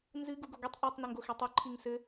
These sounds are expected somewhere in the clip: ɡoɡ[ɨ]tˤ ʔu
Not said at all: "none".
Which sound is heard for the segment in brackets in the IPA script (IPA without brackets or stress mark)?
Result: i